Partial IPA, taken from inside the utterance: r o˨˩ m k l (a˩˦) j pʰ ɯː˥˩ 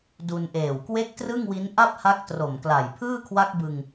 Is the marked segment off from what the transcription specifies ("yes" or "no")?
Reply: yes